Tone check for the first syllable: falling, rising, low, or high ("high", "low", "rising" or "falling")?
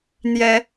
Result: rising